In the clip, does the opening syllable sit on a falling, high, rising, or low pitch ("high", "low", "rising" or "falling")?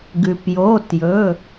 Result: low